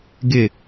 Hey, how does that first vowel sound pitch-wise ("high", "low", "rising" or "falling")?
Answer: falling